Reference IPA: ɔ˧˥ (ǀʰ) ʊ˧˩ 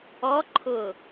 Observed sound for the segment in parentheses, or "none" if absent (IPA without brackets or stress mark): ǃʰ